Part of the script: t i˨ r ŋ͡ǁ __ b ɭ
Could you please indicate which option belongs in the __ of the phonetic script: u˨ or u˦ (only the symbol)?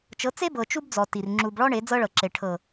u˨